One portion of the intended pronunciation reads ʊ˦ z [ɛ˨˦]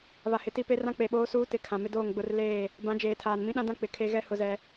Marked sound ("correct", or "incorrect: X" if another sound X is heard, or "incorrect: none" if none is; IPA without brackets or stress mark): incorrect: ɛ˦